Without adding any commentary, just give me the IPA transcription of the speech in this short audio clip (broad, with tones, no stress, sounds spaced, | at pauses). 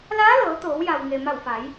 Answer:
l aː˧˥ l ɤː˩˧ t̪ oː˩˧ w j a˩ w ŋ e˩ m a˧˩ w f a˩˧ j